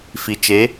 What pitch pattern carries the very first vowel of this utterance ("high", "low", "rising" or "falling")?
low